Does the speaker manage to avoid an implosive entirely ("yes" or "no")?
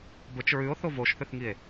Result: yes